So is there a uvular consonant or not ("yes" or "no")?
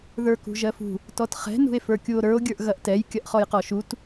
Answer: yes